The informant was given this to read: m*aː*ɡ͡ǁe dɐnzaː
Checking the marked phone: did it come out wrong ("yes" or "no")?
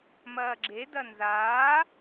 yes